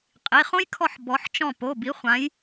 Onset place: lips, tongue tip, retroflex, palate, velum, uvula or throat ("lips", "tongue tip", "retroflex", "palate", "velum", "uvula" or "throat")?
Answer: uvula